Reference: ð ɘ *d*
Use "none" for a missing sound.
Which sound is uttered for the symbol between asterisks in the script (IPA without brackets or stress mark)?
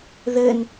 n